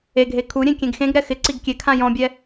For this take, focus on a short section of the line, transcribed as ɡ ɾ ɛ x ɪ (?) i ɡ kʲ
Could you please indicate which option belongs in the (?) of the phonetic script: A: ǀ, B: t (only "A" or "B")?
A